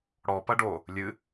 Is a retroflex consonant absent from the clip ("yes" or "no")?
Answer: no